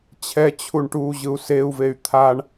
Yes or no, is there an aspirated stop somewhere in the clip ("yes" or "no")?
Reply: yes